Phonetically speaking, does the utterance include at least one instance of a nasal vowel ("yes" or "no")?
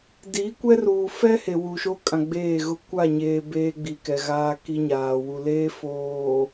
yes